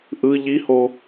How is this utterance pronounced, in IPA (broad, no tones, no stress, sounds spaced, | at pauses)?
ʔ ɯ ʎ i h o